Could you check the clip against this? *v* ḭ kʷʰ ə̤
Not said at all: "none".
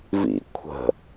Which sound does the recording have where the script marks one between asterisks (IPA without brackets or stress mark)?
v